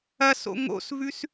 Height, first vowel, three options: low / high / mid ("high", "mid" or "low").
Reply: low